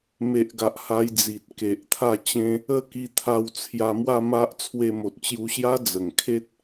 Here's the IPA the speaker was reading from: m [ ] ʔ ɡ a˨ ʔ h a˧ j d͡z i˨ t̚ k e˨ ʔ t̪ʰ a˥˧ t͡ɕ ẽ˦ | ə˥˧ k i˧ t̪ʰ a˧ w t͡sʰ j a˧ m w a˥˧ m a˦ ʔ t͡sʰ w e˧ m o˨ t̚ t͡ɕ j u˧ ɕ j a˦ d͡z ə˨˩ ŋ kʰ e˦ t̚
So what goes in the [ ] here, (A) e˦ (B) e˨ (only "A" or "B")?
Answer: B